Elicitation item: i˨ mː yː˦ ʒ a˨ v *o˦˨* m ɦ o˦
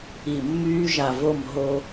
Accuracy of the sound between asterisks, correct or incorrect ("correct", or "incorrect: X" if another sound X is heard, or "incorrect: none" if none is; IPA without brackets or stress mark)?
correct